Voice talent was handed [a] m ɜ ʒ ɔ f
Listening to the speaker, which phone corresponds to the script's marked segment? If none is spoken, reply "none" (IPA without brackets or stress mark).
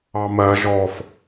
ɑ